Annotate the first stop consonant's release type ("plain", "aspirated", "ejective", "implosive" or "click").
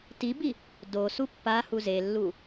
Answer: plain